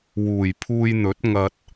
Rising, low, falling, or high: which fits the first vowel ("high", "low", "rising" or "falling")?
low